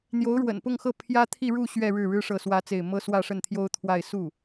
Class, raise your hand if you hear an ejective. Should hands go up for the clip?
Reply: no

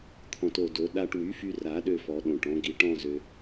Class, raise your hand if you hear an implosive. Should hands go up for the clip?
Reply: yes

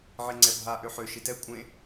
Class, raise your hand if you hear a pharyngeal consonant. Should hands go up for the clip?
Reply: yes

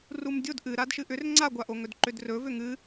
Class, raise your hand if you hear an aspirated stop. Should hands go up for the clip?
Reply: no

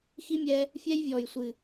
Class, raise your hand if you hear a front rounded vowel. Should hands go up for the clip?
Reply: no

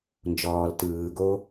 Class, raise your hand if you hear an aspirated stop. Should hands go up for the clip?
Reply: no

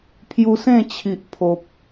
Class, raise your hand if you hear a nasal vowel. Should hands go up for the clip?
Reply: yes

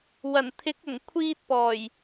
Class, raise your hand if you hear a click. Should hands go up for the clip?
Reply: no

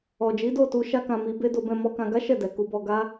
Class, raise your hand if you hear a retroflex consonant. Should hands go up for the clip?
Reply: no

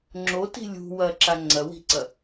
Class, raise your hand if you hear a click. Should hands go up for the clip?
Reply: yes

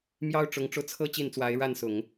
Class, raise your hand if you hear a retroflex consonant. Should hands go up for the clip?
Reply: yes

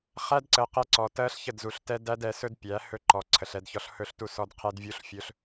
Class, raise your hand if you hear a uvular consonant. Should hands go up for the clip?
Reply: yes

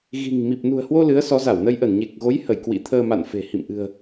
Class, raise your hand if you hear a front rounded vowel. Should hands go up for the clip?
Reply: no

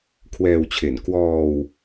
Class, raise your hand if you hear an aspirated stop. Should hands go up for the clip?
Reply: yes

